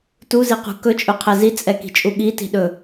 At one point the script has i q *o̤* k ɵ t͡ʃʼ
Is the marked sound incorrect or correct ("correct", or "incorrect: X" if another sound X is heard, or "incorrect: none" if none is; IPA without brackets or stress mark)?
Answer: incorrect: ṳ